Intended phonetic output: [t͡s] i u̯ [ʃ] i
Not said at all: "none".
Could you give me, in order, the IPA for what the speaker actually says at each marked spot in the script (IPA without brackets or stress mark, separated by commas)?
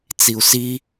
t͡s, s